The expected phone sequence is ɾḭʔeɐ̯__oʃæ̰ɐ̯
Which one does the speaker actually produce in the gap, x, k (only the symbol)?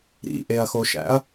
x